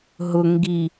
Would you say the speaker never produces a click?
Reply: yes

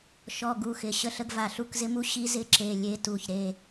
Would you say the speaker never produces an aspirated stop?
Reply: yes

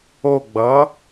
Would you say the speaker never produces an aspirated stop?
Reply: yes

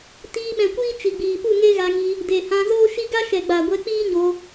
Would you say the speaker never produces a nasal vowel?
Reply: no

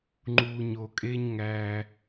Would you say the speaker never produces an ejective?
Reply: no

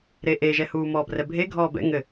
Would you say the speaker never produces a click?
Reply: yes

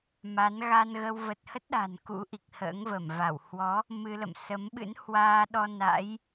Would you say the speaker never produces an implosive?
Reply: no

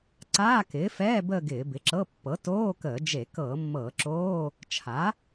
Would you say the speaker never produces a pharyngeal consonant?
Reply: yes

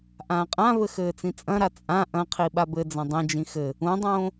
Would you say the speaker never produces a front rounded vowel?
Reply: yes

